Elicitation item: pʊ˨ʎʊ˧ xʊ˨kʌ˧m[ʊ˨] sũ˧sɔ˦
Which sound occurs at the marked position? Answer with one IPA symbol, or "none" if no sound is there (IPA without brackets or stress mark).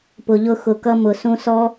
ʊ˨